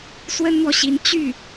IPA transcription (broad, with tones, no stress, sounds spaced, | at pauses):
s w ə˥ n n̪ w ɔ˨ ɕ i˧˥ n t͡ɕ y˥˩